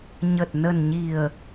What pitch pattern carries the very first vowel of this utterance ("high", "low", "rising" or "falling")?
low